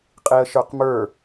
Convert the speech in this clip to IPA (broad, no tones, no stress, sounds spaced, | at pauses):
qʼ i ə̯ ʃ ə˞ q m ə˞